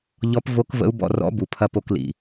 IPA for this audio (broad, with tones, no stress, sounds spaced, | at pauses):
ʎ ɔ˧˥ p v o˧˥ k v ə̰˧˥ u̯ b ɔ̰˧ r ɔ̰˧˥ b u˩ pʰ ɐ˧ p o˧ k l ḭ˩